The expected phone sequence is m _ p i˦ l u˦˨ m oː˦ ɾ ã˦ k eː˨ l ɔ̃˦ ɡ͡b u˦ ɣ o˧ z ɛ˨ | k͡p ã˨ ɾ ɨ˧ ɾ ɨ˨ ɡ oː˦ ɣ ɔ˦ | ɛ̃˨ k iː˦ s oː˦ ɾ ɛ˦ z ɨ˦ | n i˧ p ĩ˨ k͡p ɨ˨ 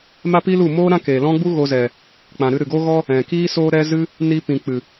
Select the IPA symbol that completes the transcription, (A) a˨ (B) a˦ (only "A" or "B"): B